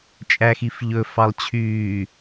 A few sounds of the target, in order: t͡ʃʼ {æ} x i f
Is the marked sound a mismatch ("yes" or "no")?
no